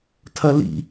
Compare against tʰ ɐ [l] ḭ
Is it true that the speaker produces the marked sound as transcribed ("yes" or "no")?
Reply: yes